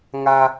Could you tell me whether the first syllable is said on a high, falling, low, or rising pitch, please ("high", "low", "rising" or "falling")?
low